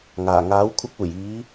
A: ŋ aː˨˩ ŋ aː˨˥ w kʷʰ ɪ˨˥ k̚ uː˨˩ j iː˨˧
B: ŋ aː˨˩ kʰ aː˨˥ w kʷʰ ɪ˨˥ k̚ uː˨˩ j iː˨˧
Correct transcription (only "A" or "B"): A